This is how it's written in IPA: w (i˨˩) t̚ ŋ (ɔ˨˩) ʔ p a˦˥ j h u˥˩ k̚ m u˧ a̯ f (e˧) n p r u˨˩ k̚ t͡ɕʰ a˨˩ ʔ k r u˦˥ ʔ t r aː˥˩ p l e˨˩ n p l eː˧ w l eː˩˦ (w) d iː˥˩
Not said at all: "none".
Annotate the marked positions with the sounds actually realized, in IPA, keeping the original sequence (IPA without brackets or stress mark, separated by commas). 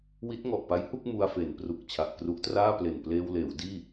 i˦˥, ɔ˨˩, e˩˦, w